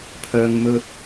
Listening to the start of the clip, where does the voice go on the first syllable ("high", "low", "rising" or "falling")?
low